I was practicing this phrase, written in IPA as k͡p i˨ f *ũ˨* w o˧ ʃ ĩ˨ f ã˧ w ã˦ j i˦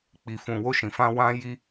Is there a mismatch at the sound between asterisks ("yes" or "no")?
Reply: no